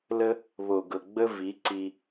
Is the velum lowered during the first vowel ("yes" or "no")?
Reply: no